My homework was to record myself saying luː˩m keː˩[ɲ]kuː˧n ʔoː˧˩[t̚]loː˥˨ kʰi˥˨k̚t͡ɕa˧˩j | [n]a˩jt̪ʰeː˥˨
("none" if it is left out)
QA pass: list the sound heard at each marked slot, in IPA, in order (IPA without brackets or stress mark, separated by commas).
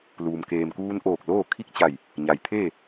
m, k̚, ɲ